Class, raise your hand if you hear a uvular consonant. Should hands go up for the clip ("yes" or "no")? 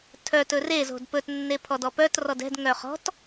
yes